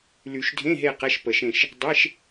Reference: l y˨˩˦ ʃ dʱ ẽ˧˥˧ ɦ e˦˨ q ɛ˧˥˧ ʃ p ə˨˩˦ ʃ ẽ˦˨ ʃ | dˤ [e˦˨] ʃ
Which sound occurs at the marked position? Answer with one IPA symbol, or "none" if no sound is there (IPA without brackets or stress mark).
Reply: e˧˥˧